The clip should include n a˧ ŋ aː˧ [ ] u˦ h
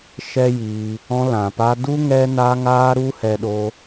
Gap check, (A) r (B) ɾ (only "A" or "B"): B